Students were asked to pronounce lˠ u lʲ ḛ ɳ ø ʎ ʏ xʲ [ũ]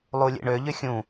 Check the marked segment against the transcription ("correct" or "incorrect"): correct